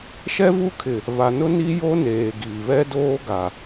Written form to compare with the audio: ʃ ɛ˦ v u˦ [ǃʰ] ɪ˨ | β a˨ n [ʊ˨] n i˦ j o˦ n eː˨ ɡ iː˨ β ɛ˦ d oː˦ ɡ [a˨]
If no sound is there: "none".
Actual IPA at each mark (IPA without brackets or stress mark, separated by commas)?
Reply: kʰ, ʊ˦, a˨